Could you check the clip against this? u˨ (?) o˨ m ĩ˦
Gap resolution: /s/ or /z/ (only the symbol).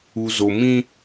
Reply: z